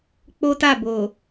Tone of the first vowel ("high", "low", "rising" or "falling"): high